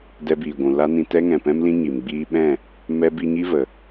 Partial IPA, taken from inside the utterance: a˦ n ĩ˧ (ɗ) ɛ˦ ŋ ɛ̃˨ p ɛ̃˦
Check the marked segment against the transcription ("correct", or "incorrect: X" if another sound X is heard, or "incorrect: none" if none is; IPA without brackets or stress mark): incorrect: t